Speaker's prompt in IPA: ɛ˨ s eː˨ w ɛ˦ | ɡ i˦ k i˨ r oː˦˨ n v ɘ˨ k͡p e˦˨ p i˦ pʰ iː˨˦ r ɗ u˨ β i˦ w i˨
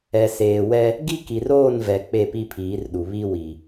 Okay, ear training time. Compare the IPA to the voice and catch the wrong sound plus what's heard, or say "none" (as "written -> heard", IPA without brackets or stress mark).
ɘ˨ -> ɛ˨